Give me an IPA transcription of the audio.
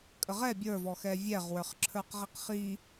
kʼ ə ʁ ɛ bʲ ə˞ v ɔ x ɛ vʲ ɛ ʁ w ə˞ χ ǁʰ ə˞ q ʁ i q χ i

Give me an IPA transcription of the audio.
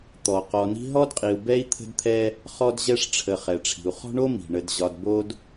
t̪ ɔ˩ q ɔ˨ n i̤˦ ɦ ɔ˥ d qʼ i˨ u̯ b ɛ˥ i̯ t̪ʰ ə̤˦ d t̪ʰ ɛ˦ | χ ɔ˦ d ʑ ɛ˦ ʂ ʈ͡ʂʰ ə˨ χ ɛ˩ ʈ͡ʂʰ i̤˩ u̯ χ ɔ̤˦ ɳ o˦ m i̤˩ ɳ ə˨ d ʑ ɒ˨ d b o˦ d

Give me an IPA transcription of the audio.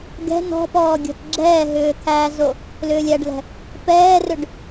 ɡ ɛ̤ n ɔ̤ p ɔː ɡʲ ɔ̤ t ɡ͡ǁ ɛː ɦ ʏː t̪ʰ æ z o | l ʏː lʲ æ ɖ l ɛ̤ | p ɛː r ʏ ɖ

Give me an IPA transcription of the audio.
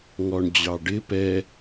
ŋ ɔ ɳ d͡ʑ ɑ ɖ ɪ p ɛ

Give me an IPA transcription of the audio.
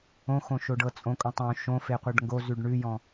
õ x õ ʃ o ɖ ɤ t͡sʼ õ kʼ õ tˤ õ ʃ õ f e qʷ ɤ ɖ ŋ ɡ o z ʉ ɖ ɳ ʉ j ɔ̃

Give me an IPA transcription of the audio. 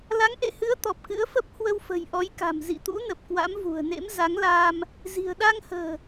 l a˨˦ ŋ ʔ ḛ˧˨ h ɨ˨˦ ə̯ t̪ ɔ˨˩ p̚ k ɨ̰˧˥ ə̯ f ə˦˥ p̚ h w ə˧ w f ə̤˨˩ j ʔ ɔ˨˦ j k a̤˨˩ m z ḭ˧˨ t̪ ṵ˧˥ n ə˨˩ p̚ k w a̰˧˥ m v ṳ˨˩ ə̯ n ḛ˧˥ m z a˨˦ ŋ l aː˧ m | z i̤˨˩ ə̯ ɗ a˧ ŋ h ə̤ː˨˩

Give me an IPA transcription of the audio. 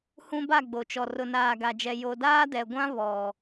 h ũ˦ b a˦˨ ɡ͡b o˨ t͡ʃ ɔ˨ r ʊ˨ n aː˨ ɡ a˨ d͡ʒ ɛ˨ j o˨ d aː˦ d ɛ˨ ɡʷ ã˦ β ɔ˨

